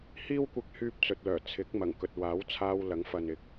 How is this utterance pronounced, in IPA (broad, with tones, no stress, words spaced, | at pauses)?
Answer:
hiː˥w kʷɪ˥k̚hyː˥p̚ t͡sɵ˨t̚lœː˨˩ t͡sʰɪ˨˥k̚mɐ˨˩ŋkɵ˨t̚ waː˨˥wt͡sʰaː˧w lɐ˨˥ŋ fɐ˨nɪ˨k̚